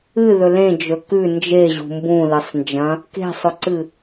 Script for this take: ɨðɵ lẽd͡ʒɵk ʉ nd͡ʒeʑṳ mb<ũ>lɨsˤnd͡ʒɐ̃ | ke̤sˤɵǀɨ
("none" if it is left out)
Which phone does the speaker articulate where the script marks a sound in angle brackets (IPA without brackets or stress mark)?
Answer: ũ